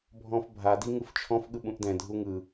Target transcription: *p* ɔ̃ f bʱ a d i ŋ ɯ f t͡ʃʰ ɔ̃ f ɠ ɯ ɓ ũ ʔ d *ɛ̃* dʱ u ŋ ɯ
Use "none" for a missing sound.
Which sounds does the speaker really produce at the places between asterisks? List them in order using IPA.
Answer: bʱ, ɛ̃

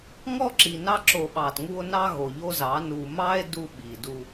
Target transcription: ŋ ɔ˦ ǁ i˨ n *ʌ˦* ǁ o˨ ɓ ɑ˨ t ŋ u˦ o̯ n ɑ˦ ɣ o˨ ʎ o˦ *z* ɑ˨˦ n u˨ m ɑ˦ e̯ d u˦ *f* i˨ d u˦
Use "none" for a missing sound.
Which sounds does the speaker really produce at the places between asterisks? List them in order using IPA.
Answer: ɑ˦, z, ɓ

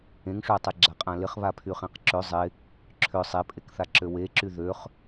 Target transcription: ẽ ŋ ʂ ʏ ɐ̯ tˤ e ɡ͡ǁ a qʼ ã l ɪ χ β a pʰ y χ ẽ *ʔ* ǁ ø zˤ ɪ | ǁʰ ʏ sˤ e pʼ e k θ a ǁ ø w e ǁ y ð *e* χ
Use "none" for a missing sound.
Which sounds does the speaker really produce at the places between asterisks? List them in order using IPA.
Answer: q, ø

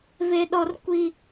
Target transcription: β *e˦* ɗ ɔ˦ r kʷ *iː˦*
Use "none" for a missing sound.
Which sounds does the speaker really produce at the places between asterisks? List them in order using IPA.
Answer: e˦, i˦

